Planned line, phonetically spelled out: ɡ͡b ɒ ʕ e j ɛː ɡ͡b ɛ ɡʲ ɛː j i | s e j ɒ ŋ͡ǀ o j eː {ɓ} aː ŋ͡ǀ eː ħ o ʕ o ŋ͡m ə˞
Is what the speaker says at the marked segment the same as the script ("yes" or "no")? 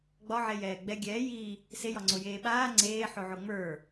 yes